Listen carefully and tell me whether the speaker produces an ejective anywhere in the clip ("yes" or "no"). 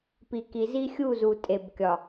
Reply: yes